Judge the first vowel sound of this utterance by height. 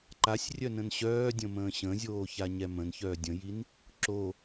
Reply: low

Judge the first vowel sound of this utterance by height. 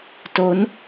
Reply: mid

